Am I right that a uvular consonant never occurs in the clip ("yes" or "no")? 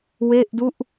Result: yes